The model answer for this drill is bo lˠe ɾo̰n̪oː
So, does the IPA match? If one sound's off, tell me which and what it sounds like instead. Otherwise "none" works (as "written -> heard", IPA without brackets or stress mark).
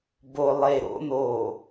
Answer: none